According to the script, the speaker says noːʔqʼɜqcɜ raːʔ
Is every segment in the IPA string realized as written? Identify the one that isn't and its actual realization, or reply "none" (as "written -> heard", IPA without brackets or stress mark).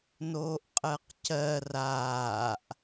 none